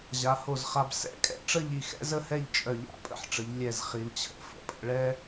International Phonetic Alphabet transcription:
ʑ a˩˧ h o˧˩ z χ a˧ b s ɛ̰˧˩ kʼ ɛ̰˧ ʈ͡ʂ ə˥˧ ʎ i˧˩ x ɛ̰˥ z ə˥ h ɛ˥˧ ʎ t͡ʃʼ œ˧˩ ʎ a̰˥ pʼ ə̰˧˩ ħ ʈ͡ʂ ə˩˧ ʎ lʲ ɛ˧˩ z χ i˩˧ l t͡ɕʰ ə̰˥˧ f ə̰˩˧ pʼ ə̰˧ ɭ ɛ˥

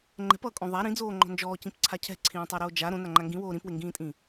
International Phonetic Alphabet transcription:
ŋ͡ǃ ɛ̤ p ʌː kʼ õ ðˤ a ɾ ĩ d͡z oː ŋ͡ǃ ɔ̤ n d͡ʒ ɔː c ĩ p ǀʰ a cʰ ɛ̤ ǀʰ ĩː tˤ o ɾ oː d͡ʒ a ɾ õ n a ŋ͡ǃ a ŋ ɡ ĩ w oː ɾ ĩ p w e ŋ ɡ ĩː tʼ ĩ

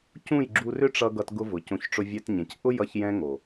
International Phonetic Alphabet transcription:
c ũ˦˨ j ɡ͡ǁ u˧ r ʏ˦ ʈ͡ʂ ʌ˧ ɡ ʌ˧ t ɡ ʊ˧ v ʊ˨ c õ˨˦ ç ʈ͡ʂ ʊ˧ vʲ ɛ˧ t ɲ ẽ˨ c ʔ ʊ˦ j ʌ˧ ç j ɛ̃˧ ŋ o˨

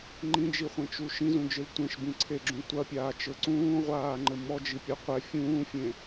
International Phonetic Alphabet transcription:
ŋ͡ǃ ĩ d͡ʒ i χʷ ẽ t͡ʃ u ʃ ĩ z ũ d͡ʒ ɨ l tʷ ẽ ʃ b ĩ ǀʰ e ɡ͡ǁ ũ tʷ ɐ pʲ aː t͡ʃ ɘ ǀ ũː ʁʷ aː ŋ͡ǃ ɘ m ɔ d͡ʒ i pʲ ɘ qʷ ɛ fʲ ũː fʲ ẽ

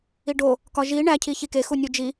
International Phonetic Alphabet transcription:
i ɖ o | k ɒ ʒ i ɳ æ cʰ i ç i k e x u nʲ u d͡ʒ i

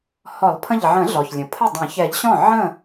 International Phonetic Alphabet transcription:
h ɔ˨˩˦ lˠ pʰ ə̃˧˩ ʎ ʕ ə̃˨˩˦ ɮ ɔ˩ ç lʲ ə̃˩ pʰ ə˥˩ dˤ ə̃˨˩˦ ç ɛ˨˩˦ ʎ ɕ ɔ̃˥˩ ʕ ə̃˥˩

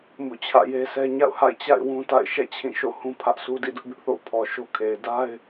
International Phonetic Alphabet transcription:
m ṵ˦˨ t͡ɕʰ ä̰˦˨ j e˦ s ɛ˦ ɲ a̰˦˨ ʊ̯ h a̰˦˨ ɪ̯ t͡ɕ a̰˦˨ ɪ̯ w ũ˦ t a̰˦˨ ɪ̯ ʃ ɛ̰˦˨ t͡ɕʰ ĩ˦˨ ʃ o̰˦˨ h ũ˦ pʰ ä˦ ʔ sʰ u˦ d ḭ˦˨ d ʊ˦ ʔ b ɪ˦ ʔ θ o̰˦˨ ʊ̯ pʰ ɔ˨ ʃ o˦ kʰ e˨ ɪ̯ d a˦ ɪ̯

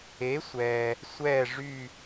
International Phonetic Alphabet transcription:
e˨˥ sʷ ɛ˨ | sʷ ɛ˦˨ ʐ y˦˨

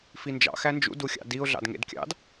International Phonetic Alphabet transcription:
f i n d͡ʒ ɑ̰ x æ n d͡ʒ ṵ d u xʲ ɑ̰ d i ʊ̯ ɮ ɑ̰ d ŋ ḛ d kʲ ɑ̰ d

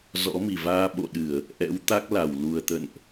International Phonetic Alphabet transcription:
z ɔ̰˧˥ m i˨˩ v aː˧ ɓ o̰˧˨ ɗ ɨ˧˩˨ ə̯ | ʔ ɛ̰˧˥ w t̪ a˦˥ k̚ l a˧˩ w l u˨˩ ə̯ t̪ ə̰˧˨ n ʔ

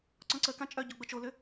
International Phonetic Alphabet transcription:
ǀ ɔ̃ ǀ ə k ã t͡ʃʼ œ ɟ o ɡ͡b ə t͡ʃ o l ʏ

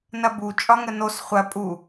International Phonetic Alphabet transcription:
n ɐ b u t͡ʃʼ ɒ ŋ ə n o s χʷ ɐ pʼ u

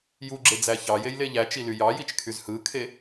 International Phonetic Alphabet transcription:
j u ɡ͡ǁ e d͡z æ ç ɑ j e j l e ʎ æ t͡ʃ i l y j ɑ j i t͡ʃ kʰ y z h ɯ kʰ e

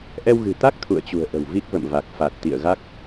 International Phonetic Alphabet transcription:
ʔ ɛ˧ w ɣ ɨ̤˨˩ t̪ a˦˥ k̚ t̪ʰ ṵ˧˨ ə̯ t͡ɕ ṳ˨˩ ə̯ ʔ ə̤˨˩ w v i˦˥ k̚ v ə̰˧˨ m v a˨˩ k̚ f a˨˩ t̚ t̪ ḭ˧˨ ə̯ ɣ a˦˥ k̚

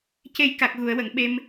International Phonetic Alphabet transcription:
c e˧ j k a˨˩ k̚ ɣ u˨˩˨ ə̯ w ə˨˩˨ ŋ ɓ e˧ m

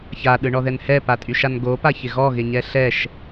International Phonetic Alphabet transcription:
ç a ɗ ɯ ɳ ɔ ð ɛ n h ɛ p a tʼ y ʃ a n ɡ o p a ç ɪ ɣ ɔ ɣ ɪ ɲ ɛ ɬ ɛ ʃ

